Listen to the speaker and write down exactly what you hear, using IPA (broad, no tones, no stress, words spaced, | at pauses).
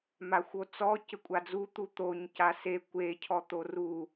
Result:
maxʷot͡sɔ cɘkʷʼad͡zu t̪ut̪oɲ case kʷe cʰɔt̪oru